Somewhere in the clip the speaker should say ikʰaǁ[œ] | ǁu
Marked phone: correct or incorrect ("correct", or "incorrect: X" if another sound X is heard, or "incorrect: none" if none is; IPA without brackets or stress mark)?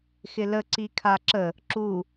incorrect: ə